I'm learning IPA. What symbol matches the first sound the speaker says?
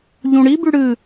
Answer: ʎ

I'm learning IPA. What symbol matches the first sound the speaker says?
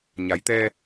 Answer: ɲ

